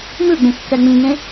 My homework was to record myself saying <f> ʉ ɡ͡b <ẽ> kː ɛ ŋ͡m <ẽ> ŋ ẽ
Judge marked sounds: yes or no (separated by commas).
no, yes, no